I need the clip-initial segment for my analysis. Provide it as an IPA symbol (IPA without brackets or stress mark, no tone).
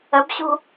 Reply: ə